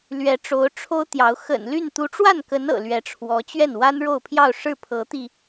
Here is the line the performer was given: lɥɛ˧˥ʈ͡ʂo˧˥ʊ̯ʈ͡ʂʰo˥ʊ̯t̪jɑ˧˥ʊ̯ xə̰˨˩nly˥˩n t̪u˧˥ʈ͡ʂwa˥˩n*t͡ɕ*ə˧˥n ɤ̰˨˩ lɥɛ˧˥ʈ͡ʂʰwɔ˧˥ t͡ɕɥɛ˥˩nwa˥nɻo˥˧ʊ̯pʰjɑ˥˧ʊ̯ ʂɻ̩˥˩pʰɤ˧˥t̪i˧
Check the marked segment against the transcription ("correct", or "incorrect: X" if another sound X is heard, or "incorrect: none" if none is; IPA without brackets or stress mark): incorrect: k